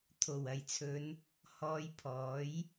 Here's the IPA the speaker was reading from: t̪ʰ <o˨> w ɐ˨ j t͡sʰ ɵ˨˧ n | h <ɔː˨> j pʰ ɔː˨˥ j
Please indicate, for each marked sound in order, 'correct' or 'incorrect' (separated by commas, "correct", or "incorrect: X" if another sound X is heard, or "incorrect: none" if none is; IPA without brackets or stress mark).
incorrect: o˨˩, incorrect: ɔː˧